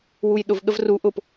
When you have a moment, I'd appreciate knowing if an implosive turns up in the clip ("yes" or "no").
yes